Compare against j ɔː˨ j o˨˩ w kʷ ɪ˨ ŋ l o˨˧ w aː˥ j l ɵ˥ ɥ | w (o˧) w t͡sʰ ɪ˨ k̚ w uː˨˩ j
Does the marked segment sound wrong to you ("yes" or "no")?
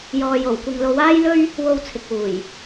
no